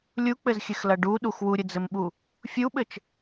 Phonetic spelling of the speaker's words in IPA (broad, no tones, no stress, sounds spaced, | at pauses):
lʲ u k͡p ɘ z xʲ ɘ x l ɐ ɖ u ɗ u x w u ɾʲ ɘ d͡z ɘ m ɓ u | fʲ u ɓ ɘ t͡ʃ